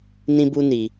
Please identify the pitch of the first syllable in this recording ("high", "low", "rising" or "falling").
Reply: high